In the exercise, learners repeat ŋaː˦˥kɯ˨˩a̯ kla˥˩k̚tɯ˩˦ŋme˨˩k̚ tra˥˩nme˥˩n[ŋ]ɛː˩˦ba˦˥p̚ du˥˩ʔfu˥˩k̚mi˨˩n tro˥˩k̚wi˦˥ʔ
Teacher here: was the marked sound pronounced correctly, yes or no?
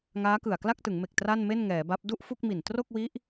yes